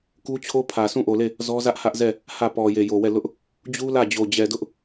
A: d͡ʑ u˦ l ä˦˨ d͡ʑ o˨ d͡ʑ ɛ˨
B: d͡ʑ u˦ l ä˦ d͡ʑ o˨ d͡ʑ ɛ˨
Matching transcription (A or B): A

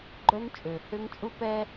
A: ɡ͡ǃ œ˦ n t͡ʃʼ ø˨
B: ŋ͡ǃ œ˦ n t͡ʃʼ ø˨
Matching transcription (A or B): A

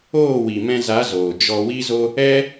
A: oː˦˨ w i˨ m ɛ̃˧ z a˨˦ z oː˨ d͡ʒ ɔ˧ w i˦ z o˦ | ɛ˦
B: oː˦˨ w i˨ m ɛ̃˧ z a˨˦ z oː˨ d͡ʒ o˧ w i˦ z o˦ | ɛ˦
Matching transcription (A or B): A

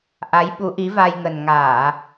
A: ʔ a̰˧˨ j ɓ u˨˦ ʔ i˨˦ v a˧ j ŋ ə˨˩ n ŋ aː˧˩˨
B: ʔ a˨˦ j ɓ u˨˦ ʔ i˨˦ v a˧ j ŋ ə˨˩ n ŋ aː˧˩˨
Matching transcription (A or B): B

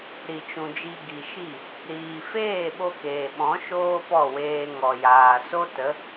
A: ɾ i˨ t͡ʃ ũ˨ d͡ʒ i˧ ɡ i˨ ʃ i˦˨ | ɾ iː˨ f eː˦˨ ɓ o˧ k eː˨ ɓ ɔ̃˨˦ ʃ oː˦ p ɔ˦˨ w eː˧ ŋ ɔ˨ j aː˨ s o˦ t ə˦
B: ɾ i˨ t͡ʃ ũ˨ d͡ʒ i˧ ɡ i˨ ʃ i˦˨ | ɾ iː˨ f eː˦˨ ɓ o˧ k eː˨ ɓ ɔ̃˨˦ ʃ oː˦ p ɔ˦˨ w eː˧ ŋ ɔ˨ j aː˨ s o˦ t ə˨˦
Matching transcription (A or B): B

